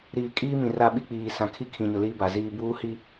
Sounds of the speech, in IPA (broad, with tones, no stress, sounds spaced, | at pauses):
ɾ iː˨ kʼ iː˦ m ĩ˨ r a˦˨ ɓ i˦ k͡p iː˨ s ã˨ kʰ i˦ kʰ ĩ˨ ɲ ʊ˨ l iː˦ b a˨ z iː˦ b uː˦ h i˦